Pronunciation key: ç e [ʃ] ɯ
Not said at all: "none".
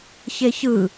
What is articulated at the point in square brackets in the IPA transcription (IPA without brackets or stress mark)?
ç